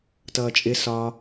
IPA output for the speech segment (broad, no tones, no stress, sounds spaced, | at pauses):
t ʌː t͡ʃʼ ɪ s ɒ